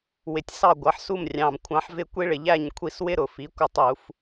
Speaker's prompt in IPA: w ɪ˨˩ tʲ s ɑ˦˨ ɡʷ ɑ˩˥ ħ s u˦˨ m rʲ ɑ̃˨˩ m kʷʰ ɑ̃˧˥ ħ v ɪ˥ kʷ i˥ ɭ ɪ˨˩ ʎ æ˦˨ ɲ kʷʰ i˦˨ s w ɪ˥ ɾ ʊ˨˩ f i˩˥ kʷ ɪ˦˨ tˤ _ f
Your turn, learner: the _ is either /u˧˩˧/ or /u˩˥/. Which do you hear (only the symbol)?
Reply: u˧˩˧